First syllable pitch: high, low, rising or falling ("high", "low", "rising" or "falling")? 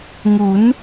rising